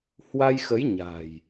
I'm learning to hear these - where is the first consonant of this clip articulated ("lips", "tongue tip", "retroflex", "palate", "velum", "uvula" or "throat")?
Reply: throat